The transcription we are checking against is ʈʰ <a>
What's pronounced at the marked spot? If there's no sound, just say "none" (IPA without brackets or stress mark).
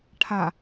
a